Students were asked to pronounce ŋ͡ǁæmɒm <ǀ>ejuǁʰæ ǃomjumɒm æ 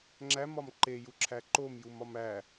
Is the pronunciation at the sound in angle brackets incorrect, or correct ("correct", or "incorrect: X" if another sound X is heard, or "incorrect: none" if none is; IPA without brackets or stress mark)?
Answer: incorrect: ǃ